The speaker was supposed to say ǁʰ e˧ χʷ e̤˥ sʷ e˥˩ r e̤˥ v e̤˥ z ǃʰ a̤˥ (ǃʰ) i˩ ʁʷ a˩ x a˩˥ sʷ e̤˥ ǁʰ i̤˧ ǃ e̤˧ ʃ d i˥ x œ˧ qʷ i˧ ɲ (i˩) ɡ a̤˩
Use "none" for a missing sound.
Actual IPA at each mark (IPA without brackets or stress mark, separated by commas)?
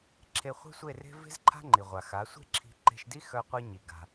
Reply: ŋ͡ǃ, i˩